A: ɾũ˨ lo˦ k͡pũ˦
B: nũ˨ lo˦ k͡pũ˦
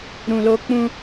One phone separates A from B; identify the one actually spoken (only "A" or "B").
A